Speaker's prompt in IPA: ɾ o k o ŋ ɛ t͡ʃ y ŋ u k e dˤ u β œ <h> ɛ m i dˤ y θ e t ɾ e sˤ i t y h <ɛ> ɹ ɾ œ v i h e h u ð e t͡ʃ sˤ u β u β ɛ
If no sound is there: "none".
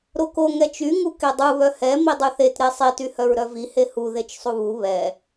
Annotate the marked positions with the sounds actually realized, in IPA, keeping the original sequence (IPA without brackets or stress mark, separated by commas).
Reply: h, œ